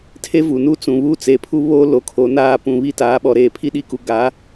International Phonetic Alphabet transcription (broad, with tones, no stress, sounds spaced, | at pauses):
tʰ e˦ v u˨ n u˦ t͡s ũ˨ β u˦ t͡s e˨ pʰ u˦ β o˦ l o˨ kʰ o˨ n aː˦˨ p ũ˨ β i˦ t aː˨˦ ɓ ɔ˨ ɾ eː˨ pʰ i˦ ɗ i˦ k u˨ ɡ a˨˦